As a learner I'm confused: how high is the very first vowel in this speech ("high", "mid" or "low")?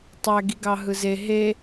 low